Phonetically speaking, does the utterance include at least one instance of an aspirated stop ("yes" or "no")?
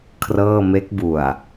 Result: yes